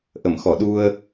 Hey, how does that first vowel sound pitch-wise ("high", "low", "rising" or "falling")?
low